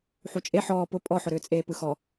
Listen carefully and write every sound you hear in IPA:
ħ u t͡ʃʼ e ħ ɔː p ʊ pʼ ɔ ħ ʊ ɾ ʏː t͡sʼ eː p ɯ x ɔ

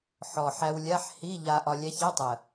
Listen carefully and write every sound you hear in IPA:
ħ ɔ˨˩ ħ æ˧ w lʲ a˧˥˧ ħ h i˧˥˧ ʎ a˧ ʔ ɒ˧ lʲ æ˧˥ ç ɛ˧˥˧ tˤ ə˨˩

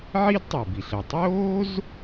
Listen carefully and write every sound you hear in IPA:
ʕ i˥ d tˤ y˩ b i˩ ɬ ə˩ tˤ oː˥ z

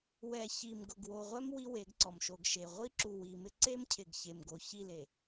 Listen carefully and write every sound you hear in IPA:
w ɛ˨ ç i˨ m ɡ ʊ˨ ɡ w o˨ ʁʷ ɛ˦ m w i˦ w e˨˦ ɡ ǀ ɔ˨ m ʃ o˨ ɡ ʃ e˨ ʁʷ i˦ ǁ u˨ w i˨ m ɪ˦ ǀ e˦ m cʰ ɪ˨ ɡ ç e˨ m ɡ o˨ ç i˦˨ l e˨

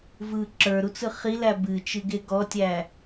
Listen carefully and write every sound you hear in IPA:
v ɯ ǁ ə˞ ɾ u t͡s ɯ χ i l æ b ɨ t͡ʃ ɨ ɡ e ɡ ɔ tʲ æ

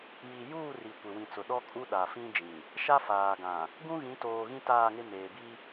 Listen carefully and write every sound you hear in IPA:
j i˨ j uː˦˨ r i˨ kʷ ɪ˨ w ĩ˨ t͡s ʊ˨ ɗ ɔ˦ kʼ u˦ ɗ a˨ f ĩ˦ d͡ʒ ĩ˨ | ʃ a˦ f aː˨ ɡ ã˨ | ɡ ũ˦ ɣ ĩ˨˦ t oː˨ ɣ ĩ˦ t aː˦˨ ŋ ɪ˦ m eː˨ b i˦

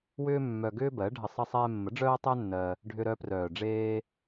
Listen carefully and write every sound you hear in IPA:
w ʏː˦ mː œ˧ ɡ ʏː˦ b ɜ˨˦ ɖʱ ə˧ sˤ ə˧ sˤ ɛː˧ mː ə˨˦ ɖ͡ʐ œː˦ tˤ œ˦ nː ɜ˧ | ɖʱ ʏ˧ ɾ œ˧ p r œː˨ ɖ͡ʐ eː˧

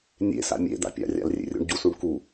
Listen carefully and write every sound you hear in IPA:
nʲ ḛ s a̰ mʲ ḛ d̪ a̰ pʲ a̰ rʲ a̰ l rʲ ḛ rʲ ṵ ɳ ɟ u s u ɳ k u

